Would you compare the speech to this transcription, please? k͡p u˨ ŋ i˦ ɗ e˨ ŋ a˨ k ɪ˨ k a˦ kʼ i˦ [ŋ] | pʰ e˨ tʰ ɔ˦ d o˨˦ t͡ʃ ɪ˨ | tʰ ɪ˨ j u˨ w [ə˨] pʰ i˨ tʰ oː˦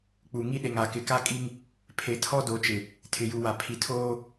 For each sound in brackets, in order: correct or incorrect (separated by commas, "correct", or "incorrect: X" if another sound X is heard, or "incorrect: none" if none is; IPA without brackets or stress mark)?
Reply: correct, incorrect: a˨